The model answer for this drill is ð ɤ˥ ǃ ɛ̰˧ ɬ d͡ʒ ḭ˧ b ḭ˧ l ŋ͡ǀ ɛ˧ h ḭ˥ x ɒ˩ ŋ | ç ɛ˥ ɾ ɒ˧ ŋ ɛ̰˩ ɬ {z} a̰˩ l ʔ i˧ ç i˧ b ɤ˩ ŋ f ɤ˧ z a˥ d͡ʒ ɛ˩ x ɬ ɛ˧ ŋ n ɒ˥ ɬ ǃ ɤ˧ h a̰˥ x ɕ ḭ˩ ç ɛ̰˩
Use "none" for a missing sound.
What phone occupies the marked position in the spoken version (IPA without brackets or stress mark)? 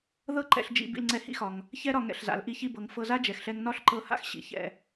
z